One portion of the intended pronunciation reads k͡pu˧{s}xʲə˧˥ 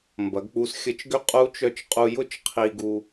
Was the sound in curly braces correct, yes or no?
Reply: yes